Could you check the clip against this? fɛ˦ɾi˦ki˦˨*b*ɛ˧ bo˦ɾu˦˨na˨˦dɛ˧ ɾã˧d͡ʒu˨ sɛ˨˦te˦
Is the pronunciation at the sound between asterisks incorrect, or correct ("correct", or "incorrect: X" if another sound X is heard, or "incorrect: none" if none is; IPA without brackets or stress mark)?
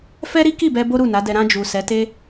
correct